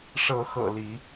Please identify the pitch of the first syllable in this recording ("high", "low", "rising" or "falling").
rising